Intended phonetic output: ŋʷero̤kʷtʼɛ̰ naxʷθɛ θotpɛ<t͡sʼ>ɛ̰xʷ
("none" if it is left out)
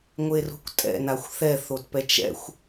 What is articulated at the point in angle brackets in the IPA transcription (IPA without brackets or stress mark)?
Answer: t͡ʃ